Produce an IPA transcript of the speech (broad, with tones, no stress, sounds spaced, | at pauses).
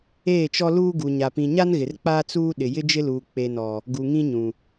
eː˦˨ t͡ʃ ɔ˦ l uː˦ ɡ u˨ ɲ a˨ p ĩ˨ ɲ a˦ n ɣ ɪ˨ r k͡p aː˦ t͡s uː˦ ɗ ɪ˨ j ɪ˦ d͡ʒ ɪ˦ l uː˨ k͡p e˨ n ɔ˨ | ɡ u˨ ŋ ĩ˦ ɲ ũ˨